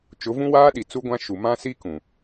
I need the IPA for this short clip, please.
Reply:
t͡ʃ ʊ˨˦ v ũ˦ w aː˦ ɗ i˨ t͡s u˦ ɡʷ ã˦ ʃ u˨ m ã˦ s i˦ k ũ˨

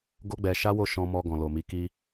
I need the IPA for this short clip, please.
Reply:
ɡ o˦ ɡ͡b ɛ˧ ʃ a˦ w o˦˨ ʃ ɔ̃˧ m ɔ˧ ɡ ɔ̃˨ l o˨ m i˨˦ k i˦

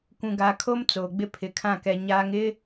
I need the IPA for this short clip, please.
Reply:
kʷ ũ˨ ɡ a˨ kʰ o˦ m t͡s oː˨ ɡ͡b ɪ˦ pʰ ɪ˨ kʰ ã˦˨ k ɛ˨ ɲ aː˨ ŋ ɪ˦

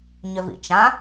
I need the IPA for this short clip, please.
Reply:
ɲ ʏ v ḭ t͡ʃ ã

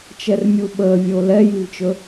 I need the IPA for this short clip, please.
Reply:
t͡ʃ ɛ r mʲ u ɓ əː vʲ o l ɛ j i v t͡ʃ ɵ

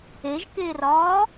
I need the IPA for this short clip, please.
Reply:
e ʒ k eː r ɒː

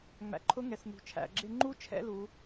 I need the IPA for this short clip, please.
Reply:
ŋ͡m æ̰˩˧ ǃʰ ʊ˧˥ ŋ ɛ˩ s n ṳ˩ t͡ʃʰ æ̰˩ ɡ͡ǁ ɪ˧ ŋ͡ǃ u˥ t͡ʃʰ ɛ̰˥ l u˩˧

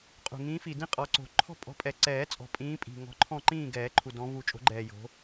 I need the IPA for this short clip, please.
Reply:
qʼ ṳ˨˩ ŋ ĩː˨˦ f i˨˩ d ĩ˦˨ qʼ ɔ˨˩ ǀ o̤˨˩˦ ǃʰ ɔ̤˦˨ pʼ ɔ̤˨˦ pʼ ɛ˨˩ ǀ ɛː˨˩˦ t͡sʼ ɔ̤˨˩ pʼ ĩː˨˦ pʼ i̤˨˩ ŋ ɔ̤˨˦ ǃʰ ɔ̃˦˨ ǃ ĩː˦˨ ɡ ɛː˨˩˦ ǃʰ u˨˩ d ɔ̃˨˦ v u˨˩˦ t͡ʃʼ o̤˨˩˦ ɡ͡ǃ ɛː˨˩ j o̤˨˦

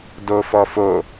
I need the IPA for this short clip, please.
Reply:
d o f ɔ f o

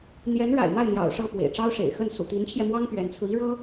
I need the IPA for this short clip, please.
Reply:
n̪ j ɛ˧˥ n ɻ a̰˨˩ ɪ̯ m a˥˩ ɪ̯ n̪ j ɑ̰˨˩ ʊ̯ ʂ ɤ˥˩ p w ḛ˨˩ ɪ̯ ʈ͡ʂ ɑ˥ ʊ̯ ʂ ḛ˨˩ ɪ̯ x ə˥˩ n s ṵ˨˩ t̪ i˧˥ n t͡ɕʰ j ɛ˧ m w ɑ˥ ŋ p ɥ ɛ˧˥ n t͡sʰ ɹ̩˧ i˥ ɻ ɤ˥

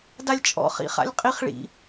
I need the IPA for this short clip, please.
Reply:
d a lʲ t͡ʃʼ ɔ̰ χ ḭ χ a̰ lʲ qʼ i χ ɭ ḭ

